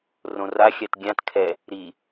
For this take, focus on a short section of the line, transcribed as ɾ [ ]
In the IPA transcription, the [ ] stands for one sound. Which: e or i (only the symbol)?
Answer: i